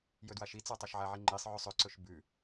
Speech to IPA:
j ɵ d w a ʃ i t͡s a tˤ ɐ ʃ ʕ a ʕ i ŋ͡ǃ i sˤ ʕ ʉ sˤ ɵ ǀ ɵ ʃ b ʉ

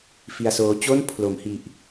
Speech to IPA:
f i˧ a̯ s oː˦˥ t͡ɕ o˥˩ n pʰ l o˩˦ m h i˨˩ ʔ

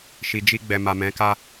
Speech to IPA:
ʃ i˨ d͡ʒ i˧ ɡ͡b ɛ˨ m a˨ m ɛ̃˨˦ k a˦

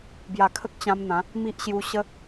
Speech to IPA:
b j a˨˩ kʰ ə˦ k̚ t͡ɕ ã˧ m n̪ ã˨˦ | m i˦ ʔ ɕ j u˧ ɕ ə˦

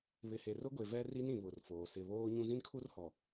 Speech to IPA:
β ɪ˨ h e˨ r ʊ˦ ɡʷ e˨ v ɛ˦ r i˦ n ĩ˨ β ʊ˨ r f oː˨ s ɪ˨ β oː˦ ɲ ũ˦ z ĩ˦ n kʰ u˦ r h ɔ˨

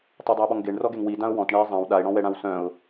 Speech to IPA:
tˤ ø dˤ ø ɪ̯ ɓ ɔ ŋ ɡ e ɳ r ɔ ɡ e ŋ w i d ã ʊ̯ w ɔ̃ t ɳ ɛ ɪ̯ zˤ ã w ɗ a ɪ̯ ɽ ɔ̃ w ɛ ɽ ã w s œ̃ ʊ̯

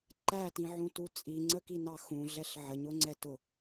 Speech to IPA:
ǃ æ t ĩ ʕ ũ t u t͡sʼ i ŋ͡ǀ ə k i n ɑ x ũ ɮ ɛ ɬ ʕ ə ɲ ʊ ŋ͡ǀ ɛ t ʊ

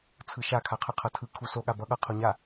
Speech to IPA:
t͡sʰ ɯ ʃ a kʰ a qʰ ɯ qʰ ʌ tʰ ɯ kʰ u s o ɠ a b ʌ ɠ ʌ qʰ o ɲ a

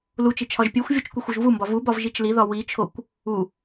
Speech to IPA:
l u t͡ʃ i t͡ʃʰ ɒ ʒ pʲ e xʷ vʲ o t͡ʃ kʷ i xʷ o ʒ v u m b ɒ v u b ɒ v ʒ i t͡ʃ l i ð ɒ w i t͡ʃʰ o kʷ | u

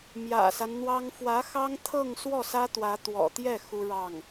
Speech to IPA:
m j ä̰˨˩ s a˦ n n̪ w ɑ˥ ŋ f w ä˧˥ x ɑ˥ ŋ t̪ʰ ɤ˥˧ ŋ s w ɔ˥˩ s ä˥ t̪ w ä˧˥ t̪ w ɔ̰˨˩ t̪ j ɛ˥˩ x u˥ ɻ ɑ˥˩ ŋ

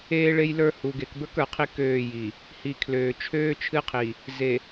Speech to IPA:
eː˦ ɭ e˦ j l ə˞˦ h u˨ ɡ e˨ k b ə˞˦ k ə˞˨ qʰ i˦ k øː˦˨ j i˨ | h i˨ kʰ l øː˨ t͡ʃʰ øː˦ t͡ʃʰ ɨ˦ qʰ i˨ | z e˨

